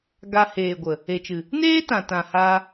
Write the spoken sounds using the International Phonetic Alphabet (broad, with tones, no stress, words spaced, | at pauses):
ɡa˧ heː˨ɡʷə˨ | e˨t͡ʃɨ˨ | neː˦tã˨tã˨ haː˧